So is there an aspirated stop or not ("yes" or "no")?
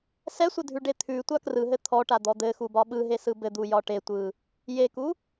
yes